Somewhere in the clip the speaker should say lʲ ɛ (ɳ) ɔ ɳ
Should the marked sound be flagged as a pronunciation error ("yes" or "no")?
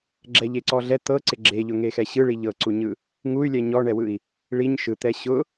yes